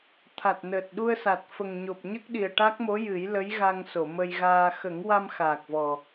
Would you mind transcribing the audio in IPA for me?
t̪ʰ a˨˩ t̚ n əː˨˩ t̚ ɗ u˧ ə̯ s a˨˩ t̚ f ə˨˩ ŋ ɲ o˨˩ p̚ ɲ ə˦˥ k̚ ɗ i˨˩ ə̯ ʈ a˦˥ k̚ m o˧˥ j ɨ˨˩˦ j l ə˧˥ j ɣ a˧ ŋ s o˨˩˨ m ə˧ j ɣ aː˧ x ə˨˩˦ ŋ w a˧ m x aː˨˩ k̚ v ɔ˨˩

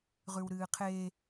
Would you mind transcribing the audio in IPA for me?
ʁ ʉ w ɾ ɨː qʰ e

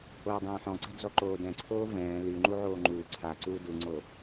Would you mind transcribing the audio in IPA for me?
oː dˤ ɛ̃ː ħ ɔ̃ ǀ a̤ d͡z ɔ ǃ oː d ɛ̃ ǀʰ oː v ɛ̃ː l y ŋ͡ǃ u ʕ oː ŋ͡ǃ uː ǀʰ a ǀ uː d u ŋ͡ǀ o

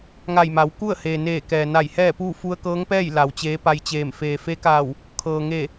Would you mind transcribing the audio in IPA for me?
ŋ a˧˩ j m a˩˧ w k u˥˨ ə̯ h eː˩ n eː˧˩ k ɛː˩ n a˧˩ j h ɛː˥˨ p uː˥˨ f u˧ ə̯ k ɤː˧˥ ŋ p ɛː˥˨ j l a˩ w t͡ɕ eː˧˥ p a˧ j t͡ɕ eː˧˩ m f eː˩ f e˧˥ k aː˧˩ w | kʰ ɤː˩ ŋ e˧˩

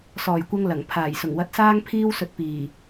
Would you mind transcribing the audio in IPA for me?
s ɔː˨˩ j kʷ ɐ˧ ŋ l ɐ˨˩ ŋ pʰ aː˨˩ j s ʊ˨˩ ŋ w ɐ˧ t̚ s aː˥ ŋ pʰ iː˥ w s ɵ˧ t̚ p iː˨˩

